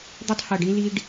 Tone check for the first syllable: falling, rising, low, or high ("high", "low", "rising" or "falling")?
high